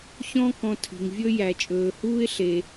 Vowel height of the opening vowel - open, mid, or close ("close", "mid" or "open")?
mid